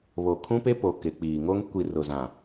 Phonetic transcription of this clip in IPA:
β o˨ kʰ ũ˦ p e˦ p oː˨ k ɪ˨ k͡p iː˨ ŋ o˦ ŋ kʷ i˨ r ʊ˨ z ã˨

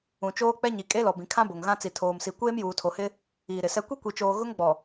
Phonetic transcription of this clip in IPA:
ũ˨ t͡ʃ oː˦ k͡p ɛ˦ ɲ i˨ kʼ e˦ l ɔ˨ b ĩ˨ kʰ ã˦ b o˨ ŋ ɣ ã˦ t͡s i˨ tʰ oː˨ m s i˨ kʷ eː˦ m j uː˨ tʰ o˨ h ɪ˦ | iː˨ ɾ ɪ˨ s ɛ˦ kʷ i˦ kʷ i˨ t͡ʃ oː˨ ɣ ʊ˦ ŋ ɡ͡b ɔ˨

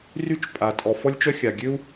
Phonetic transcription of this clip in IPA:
r y˥ t͡ʃ pʼ a˩ tʼ ɔ˩ f ɔ˥ lʲ t͡ʃ œ˥ xʲ a˩ ɡʲ ø˥ u̯

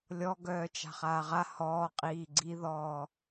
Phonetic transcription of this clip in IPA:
lʲ ɔ ɡ œː t͡ʃ a̤ χ aː ʁ a h ɔː qʼ iː ɡ͡ǀ i ð ɔː

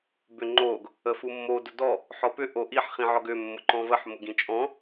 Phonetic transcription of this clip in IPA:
b ʏ ŋ͡ǃ o ɡ | ə f u mː o d ʊ d ɔ | ħ ɔ p ʏ ʔ o ʔ i ħ χ ĩ ʕ ɔ ɡ ʏ mː ʊ ǃ ɔ̃ v ə ħ m ʊ ɡ ĩ t͡ʃʼ ɔ̃

